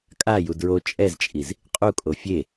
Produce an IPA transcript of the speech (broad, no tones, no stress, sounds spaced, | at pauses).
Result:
kʼ a j u d ɹ o t͡ʃʼ ɛ z t͡ʃʼ i z | qʼ u kʼ o fʲ e